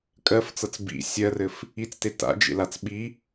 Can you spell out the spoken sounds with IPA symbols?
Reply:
kʼ ɜ f t͡s ɤ t͡s b ḭ sʲ ɜ r ɘ f | i t͡s t e t a̰ d͡ʒ ḛ l a t͡s ɓ i

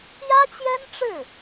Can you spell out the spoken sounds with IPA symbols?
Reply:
j ä˥ t͡ɕ j ɛ˥ n ʈ͡ʂ ɻ̩˥˩

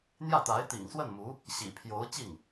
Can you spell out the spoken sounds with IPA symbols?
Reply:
n̪ j ä˥˩ t̪ a˧˥ ɪ̯ t̪ ḭ˨˩ ŋ s w ə˥˩ n m u˧˥ | ɕ ḭ˨˩ pʰ j o˧˥ ʊ̯ t͡ɕ i˥˩ ŋ

